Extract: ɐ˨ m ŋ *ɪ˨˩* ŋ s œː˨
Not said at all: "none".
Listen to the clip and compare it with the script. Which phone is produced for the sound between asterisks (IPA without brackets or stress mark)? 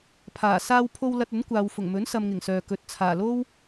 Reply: ɪ˨˩